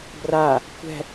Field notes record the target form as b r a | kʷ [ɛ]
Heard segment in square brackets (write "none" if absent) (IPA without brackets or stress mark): ɛ̤